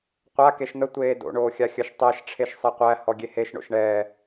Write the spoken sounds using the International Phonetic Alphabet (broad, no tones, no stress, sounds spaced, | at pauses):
qʷ a k e ʃ n̪ ə tʷ eː d o̰ ɳ oː xʲ a xʲ ə ʃ tˤ ɛ ʃ ʈ͡ʂʰ e ʃ sˤ e qʷ æ h ɔ ɡʲ e h e ʃ ɳ o̰ ʃ ɳ ɛː